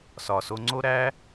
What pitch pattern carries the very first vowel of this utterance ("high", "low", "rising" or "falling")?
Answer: low